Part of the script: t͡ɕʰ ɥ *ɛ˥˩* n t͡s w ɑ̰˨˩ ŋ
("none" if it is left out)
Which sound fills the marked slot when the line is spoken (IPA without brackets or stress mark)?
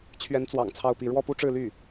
ɛ˧˥